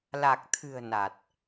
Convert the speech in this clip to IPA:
la˨˩k̚t̪ʰɨ̤˨˩ə̯ na˨˩t̚

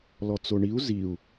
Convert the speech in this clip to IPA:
lɔt͡soɳiu̯ ziu̯

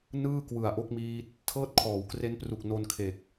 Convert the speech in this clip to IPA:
nɯː˥˩ kwɯ˨˩a̯ʔo˦˥k̚miː˦˥t̚ | tʰɤː˥˩t̚kʰɔː˩˦wkre˦˥npru˨˩k̚ no˧nkʰe˨˩k̚

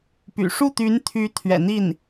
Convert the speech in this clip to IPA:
py̰˨˩ ʂu˥˩t̪y˧˥nt̪ʰy˧˥ t̪ʰɥɛ̰˨˩n̪i˥˩n

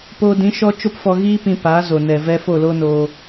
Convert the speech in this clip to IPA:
poː˧dĩ˨˦ ʃɔ˦t͡ʃo˦pfɔ˧ ɣiː˦pĩ˧ pa˨˦zo˨nɛ˨ vɛ˦ fo˦˨loː˦noː˧

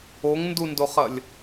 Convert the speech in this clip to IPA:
oŋndundoχɐlʲ

